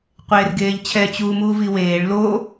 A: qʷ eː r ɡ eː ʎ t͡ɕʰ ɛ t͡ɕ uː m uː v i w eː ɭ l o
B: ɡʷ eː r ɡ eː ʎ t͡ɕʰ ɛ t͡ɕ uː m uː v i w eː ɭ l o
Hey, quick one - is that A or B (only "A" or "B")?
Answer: A